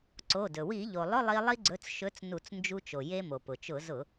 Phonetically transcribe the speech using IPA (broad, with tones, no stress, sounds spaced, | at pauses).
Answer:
ǀ o˩˧˩ d ɵ˩ w i˧˩˧ ʎ o˩ lˠ ʊ˧˥˧ lˠ i˧ lˠ i˧ ɡ͡ǀ ɵ˩˧˩ t͡s ʃ ɵ˨˥ t͡s n u˧˩˧ t͡s n d͡ʒ u˧ t͡ʃ o˩ j e˧ m o˩ p ʊ˩ t͡ʃ ʊ˧˩˧ z ʊ˧˩˧